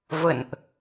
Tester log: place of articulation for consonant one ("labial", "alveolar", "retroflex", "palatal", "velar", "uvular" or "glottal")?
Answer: labial